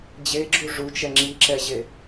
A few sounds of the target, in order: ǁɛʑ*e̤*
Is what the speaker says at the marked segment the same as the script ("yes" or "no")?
no